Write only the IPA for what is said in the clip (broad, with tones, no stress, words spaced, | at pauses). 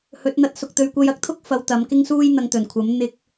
hɵ˨˥t̚n̪ɐ˧t̚sʊ˧k̚ t̪ɵ˨˧ɥkʷɐ˧jɐ˧k̚t̪ʰʊ˥k̚ fɐ˧wt̪ɐ˨˧mkɪ˥ŋsuː˥j n̪ɐ˧ŋt̪ɵ˨˩nkʷʰɐ˨˥m n̪ɪ˧k̚